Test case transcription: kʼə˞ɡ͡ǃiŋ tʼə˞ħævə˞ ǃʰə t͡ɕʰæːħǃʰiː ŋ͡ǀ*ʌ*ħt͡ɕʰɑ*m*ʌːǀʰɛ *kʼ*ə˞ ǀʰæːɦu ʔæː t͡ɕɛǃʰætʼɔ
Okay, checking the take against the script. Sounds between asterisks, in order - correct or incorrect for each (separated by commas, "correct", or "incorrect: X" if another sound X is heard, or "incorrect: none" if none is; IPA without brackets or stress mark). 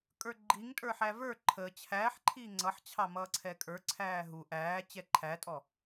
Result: correct, correct, correct